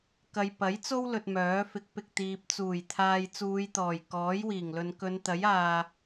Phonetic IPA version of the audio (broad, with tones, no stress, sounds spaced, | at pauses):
k ɐ˨ j p ɐ˨˥ j t͡s o˥ w l ɵ˧ t̚ m œː˨˥ f ɪ˨˥ k̚ p ɪ˨ k̚ t̪ iː˨ p̚ t͡s uː˨˩ j t̪ʰ aː˨ j t͡s uː˨˧ j t̪ ɔː˨˩ j k ɔː˨˥ j w iː˨˩ ŋ l ɵ˨ n k ɵ˨˧ n t̪ ɐ˨˥ j aː˨